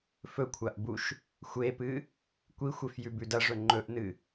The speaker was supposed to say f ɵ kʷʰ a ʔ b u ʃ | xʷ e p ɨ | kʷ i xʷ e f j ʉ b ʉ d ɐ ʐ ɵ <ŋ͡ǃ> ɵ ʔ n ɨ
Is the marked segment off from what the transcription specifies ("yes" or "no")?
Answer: no